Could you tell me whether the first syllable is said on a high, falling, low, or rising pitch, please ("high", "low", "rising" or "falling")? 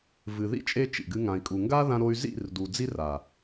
low